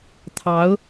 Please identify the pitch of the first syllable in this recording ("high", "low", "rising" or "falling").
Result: rising